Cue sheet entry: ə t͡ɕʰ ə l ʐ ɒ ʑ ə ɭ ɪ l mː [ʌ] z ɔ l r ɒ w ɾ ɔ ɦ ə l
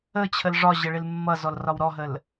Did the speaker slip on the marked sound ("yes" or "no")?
no